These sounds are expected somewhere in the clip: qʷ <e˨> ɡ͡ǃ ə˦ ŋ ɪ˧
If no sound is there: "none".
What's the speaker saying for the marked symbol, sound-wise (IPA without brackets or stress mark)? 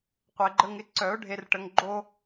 e˧